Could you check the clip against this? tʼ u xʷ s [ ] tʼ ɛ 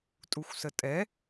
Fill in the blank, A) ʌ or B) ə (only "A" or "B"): B